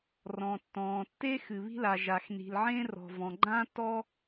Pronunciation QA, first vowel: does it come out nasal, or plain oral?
nasal